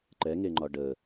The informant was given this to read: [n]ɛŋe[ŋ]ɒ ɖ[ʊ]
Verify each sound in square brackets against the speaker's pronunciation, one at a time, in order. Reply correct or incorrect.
incorrect: ǃ, incorrect: ŋ͡ǃ, incorrect: ə

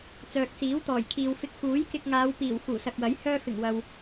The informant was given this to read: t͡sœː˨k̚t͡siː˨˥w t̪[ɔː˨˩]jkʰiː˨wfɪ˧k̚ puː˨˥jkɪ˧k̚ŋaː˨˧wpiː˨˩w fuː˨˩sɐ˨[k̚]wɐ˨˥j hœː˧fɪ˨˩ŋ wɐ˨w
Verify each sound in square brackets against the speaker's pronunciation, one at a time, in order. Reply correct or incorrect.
correct, correct

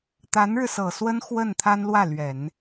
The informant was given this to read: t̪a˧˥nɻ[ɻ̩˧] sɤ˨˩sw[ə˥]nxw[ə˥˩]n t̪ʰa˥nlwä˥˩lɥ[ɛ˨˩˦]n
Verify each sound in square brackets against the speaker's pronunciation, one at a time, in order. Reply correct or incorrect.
correct, correct, correct, correct

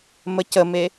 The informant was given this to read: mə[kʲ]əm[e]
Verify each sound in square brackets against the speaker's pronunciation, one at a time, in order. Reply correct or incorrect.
incorrect: c, correct

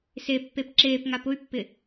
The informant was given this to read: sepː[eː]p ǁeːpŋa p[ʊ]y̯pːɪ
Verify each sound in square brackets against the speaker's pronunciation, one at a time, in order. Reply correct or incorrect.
incorrect: e, correct

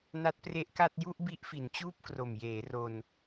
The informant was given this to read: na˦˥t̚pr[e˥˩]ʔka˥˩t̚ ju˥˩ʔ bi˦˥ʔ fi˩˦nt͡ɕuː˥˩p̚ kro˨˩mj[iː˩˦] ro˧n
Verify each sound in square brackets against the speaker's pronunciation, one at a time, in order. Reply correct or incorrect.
incorrect: e˦˥, incorrect: eː˩˦

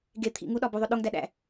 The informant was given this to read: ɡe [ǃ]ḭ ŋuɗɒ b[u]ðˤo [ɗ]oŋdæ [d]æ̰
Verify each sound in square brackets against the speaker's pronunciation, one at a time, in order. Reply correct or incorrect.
incorrect: t̪ʰ, correct, correct, incorrect: ɗ

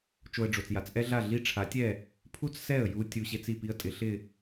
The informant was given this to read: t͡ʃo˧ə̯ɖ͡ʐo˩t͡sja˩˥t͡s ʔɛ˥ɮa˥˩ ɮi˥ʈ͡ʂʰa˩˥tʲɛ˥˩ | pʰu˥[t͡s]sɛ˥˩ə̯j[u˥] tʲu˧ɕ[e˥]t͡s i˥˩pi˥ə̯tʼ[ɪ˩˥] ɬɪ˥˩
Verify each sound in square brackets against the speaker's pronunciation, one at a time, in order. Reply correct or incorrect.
correct, incorrect: u˧, correct, correct

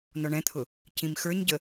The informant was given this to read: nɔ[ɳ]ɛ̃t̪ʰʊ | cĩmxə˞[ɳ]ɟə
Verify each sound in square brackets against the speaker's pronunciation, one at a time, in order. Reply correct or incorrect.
correct, incorrect: ɲ

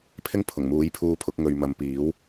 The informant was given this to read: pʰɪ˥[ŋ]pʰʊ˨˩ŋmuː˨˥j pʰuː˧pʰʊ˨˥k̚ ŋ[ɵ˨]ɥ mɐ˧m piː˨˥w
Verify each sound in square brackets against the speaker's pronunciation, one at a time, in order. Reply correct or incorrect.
correct, correct

